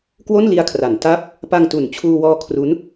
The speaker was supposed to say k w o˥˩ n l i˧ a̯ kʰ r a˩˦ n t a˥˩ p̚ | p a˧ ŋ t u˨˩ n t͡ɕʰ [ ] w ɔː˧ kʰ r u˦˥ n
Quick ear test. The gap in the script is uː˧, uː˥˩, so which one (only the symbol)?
uː˧